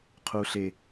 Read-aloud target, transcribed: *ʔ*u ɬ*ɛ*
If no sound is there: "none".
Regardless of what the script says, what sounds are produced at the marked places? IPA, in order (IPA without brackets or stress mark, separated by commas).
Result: qʰ, e